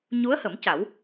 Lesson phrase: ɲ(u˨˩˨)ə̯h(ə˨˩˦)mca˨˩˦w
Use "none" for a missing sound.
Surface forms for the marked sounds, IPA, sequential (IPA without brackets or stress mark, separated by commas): u˧˥, ə˨˩˦